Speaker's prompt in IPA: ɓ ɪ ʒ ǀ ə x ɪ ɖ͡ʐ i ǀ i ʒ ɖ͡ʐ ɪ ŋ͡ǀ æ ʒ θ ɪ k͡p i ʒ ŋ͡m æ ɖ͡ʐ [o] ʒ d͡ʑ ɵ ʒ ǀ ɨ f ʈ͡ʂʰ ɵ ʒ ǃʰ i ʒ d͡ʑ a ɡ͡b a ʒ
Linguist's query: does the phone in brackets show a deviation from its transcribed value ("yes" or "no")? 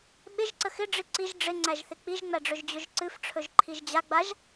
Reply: yes